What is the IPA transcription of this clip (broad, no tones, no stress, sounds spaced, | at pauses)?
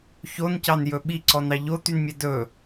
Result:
ç o n c ɑ n j ɵ ɓ i ǀ ɔ n ɑ ʎ o t̪ y n mʲ ɛ d ɵ